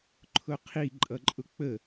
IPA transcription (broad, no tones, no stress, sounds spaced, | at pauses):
ǃʰ ʊ qʰ i ǃʼ ʌ ǃʼ ʊ k͡p ə